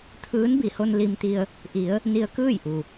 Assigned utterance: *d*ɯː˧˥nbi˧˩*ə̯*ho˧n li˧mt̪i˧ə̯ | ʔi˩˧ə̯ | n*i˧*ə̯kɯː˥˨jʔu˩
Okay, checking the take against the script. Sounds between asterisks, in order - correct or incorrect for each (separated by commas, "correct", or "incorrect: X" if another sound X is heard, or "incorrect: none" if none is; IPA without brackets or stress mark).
incorrect: t̪ʰ, incorrect: none, correct